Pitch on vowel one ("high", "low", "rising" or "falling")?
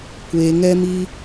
low